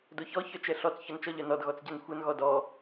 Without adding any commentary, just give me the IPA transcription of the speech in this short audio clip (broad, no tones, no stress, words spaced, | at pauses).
doçɔ çœt͡ʃɛɬɔt͡s çɔnt͡ʃɔʎœnɔd ɣɔt͡sɟɛnxʷœn ɣɔdɔ